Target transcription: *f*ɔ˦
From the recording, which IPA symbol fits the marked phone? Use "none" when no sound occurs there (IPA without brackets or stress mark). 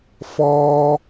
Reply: f